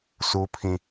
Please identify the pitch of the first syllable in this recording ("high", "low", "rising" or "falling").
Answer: high